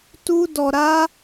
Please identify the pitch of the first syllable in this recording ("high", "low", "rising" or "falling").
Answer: high